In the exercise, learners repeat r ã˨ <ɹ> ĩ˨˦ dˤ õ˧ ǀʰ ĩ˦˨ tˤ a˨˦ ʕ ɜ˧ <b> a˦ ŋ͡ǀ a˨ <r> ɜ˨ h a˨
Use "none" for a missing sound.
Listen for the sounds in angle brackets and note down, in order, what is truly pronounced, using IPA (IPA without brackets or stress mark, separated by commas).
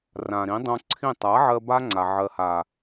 ɾ, b, ʕ